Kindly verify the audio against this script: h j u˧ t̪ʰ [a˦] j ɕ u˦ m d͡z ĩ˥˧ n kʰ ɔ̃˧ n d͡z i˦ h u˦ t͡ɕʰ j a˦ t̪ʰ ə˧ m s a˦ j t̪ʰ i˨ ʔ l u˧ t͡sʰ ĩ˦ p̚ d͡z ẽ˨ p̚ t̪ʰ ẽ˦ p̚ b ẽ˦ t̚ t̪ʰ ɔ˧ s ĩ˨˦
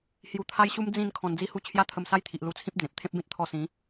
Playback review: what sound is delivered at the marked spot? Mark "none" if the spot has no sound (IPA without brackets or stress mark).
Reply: a˦